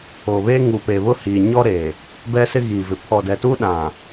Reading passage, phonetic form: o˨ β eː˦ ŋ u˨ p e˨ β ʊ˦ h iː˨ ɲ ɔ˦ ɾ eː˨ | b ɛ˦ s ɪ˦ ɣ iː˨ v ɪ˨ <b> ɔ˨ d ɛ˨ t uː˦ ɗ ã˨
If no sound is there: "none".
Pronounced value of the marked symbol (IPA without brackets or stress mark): pʰ